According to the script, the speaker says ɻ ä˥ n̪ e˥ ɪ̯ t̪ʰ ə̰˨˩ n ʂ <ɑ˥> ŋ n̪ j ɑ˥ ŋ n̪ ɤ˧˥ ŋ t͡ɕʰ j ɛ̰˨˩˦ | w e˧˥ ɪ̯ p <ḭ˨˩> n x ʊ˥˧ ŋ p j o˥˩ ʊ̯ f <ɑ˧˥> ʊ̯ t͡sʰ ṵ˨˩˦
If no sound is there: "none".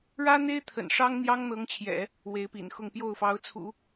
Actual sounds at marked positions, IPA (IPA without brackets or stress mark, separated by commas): ɑ˥, ḭ˨˩, ɑ˧˥